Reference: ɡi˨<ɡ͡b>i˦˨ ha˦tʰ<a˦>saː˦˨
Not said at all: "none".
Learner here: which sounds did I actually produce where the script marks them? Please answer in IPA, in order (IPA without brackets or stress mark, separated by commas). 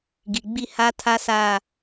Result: ɡ͡b, a˦